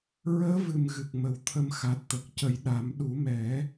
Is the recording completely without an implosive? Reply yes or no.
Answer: no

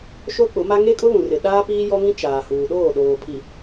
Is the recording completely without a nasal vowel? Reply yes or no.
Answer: no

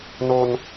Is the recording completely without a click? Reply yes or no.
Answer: yes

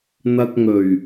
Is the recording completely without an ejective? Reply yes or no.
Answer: yes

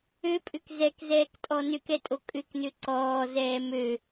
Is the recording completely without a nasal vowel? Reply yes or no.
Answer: yes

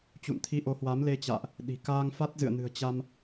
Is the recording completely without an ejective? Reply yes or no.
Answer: yes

